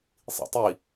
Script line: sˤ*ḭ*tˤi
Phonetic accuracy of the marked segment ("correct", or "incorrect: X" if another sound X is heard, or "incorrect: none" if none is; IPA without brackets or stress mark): correct